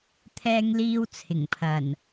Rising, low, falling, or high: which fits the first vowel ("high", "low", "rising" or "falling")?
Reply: high